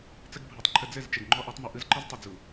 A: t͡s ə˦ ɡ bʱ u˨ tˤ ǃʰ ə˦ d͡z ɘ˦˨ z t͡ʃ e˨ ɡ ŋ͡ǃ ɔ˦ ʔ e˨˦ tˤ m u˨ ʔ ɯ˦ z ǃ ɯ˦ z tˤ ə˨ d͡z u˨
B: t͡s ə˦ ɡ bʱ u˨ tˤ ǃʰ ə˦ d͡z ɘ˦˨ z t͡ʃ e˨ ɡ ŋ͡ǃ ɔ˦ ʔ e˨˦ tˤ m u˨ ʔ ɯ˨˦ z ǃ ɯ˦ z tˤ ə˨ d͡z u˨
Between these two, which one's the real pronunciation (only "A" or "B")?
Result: A